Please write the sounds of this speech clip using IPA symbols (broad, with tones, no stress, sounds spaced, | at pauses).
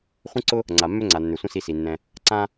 χʷ ə̃˥ ǀ ʊ˥ | ŋ͡ǀ a˩ mː ø˥ ŋ͡ǀ a˩ nː ø˩ sʷ ə̃˥ s i˧ s i˩ nː ɛ̃˧ | ǀ ã˥